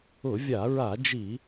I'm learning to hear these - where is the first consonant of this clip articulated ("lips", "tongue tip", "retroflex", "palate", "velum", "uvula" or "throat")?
lips